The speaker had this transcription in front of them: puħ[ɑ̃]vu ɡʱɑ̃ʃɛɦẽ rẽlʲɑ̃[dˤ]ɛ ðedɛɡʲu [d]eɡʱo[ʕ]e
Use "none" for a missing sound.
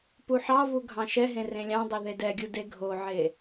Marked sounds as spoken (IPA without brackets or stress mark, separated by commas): ɑ, dˤ, d, ʕ